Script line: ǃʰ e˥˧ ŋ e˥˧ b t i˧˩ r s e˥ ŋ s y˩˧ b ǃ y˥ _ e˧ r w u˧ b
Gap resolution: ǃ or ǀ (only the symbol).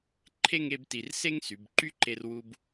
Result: ǃ